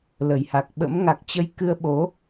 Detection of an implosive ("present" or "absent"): present